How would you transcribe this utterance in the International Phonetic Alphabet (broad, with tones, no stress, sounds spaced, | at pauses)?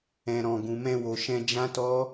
ɛ̃˧ ɾ ɔ̃˧ ɡ ũ˨ m ɛ̃˧ w o˨ ʃ ɛ̃˧ d͡ʒ ã˦ t ɔ˦